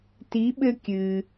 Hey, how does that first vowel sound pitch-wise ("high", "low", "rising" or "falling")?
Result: rising